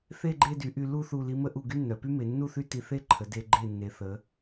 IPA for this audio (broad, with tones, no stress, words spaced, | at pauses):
θe˥˧ɡ͡ǃe˥˧dy˩˧ ʔy˧lu˥˧ θu˧˩li˧mə˥˧ʔu˧˩ ɡy˥nːœ˩˧py˥ me˩˧nːu˥˧θy˥˧ ti˧θe˥ǃʰə˩˧ de˧ ɡ͡ǃe˧˩nːe˩˧θə˩˧